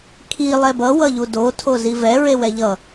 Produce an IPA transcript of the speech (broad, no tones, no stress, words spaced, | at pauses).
kʰi lˠɛbʌ wʌʎudo tʰozivɛ ɹewɛʎʌ